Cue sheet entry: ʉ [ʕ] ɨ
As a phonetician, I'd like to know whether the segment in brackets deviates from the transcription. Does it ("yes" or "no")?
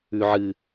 no